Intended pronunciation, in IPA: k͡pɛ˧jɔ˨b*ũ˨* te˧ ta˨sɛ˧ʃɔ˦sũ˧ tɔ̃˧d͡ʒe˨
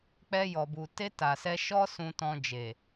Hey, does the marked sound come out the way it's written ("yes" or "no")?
no